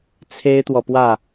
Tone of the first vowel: high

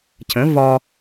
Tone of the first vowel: rising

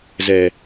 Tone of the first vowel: low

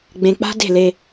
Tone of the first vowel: low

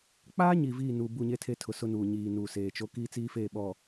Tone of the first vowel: high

